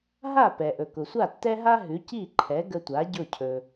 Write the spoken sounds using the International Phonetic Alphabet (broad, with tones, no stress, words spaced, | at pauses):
ɦa˥˩pɛ˩ʔɵ˩ kʊ˩sʷa˥˩tːɛ˥ɦa˥ ɦʉ˩˥ci˥˩ǃʰɛ˩˥ ɡə˧tʷa˩˥ ɟʊ˥˩cʰɵ˩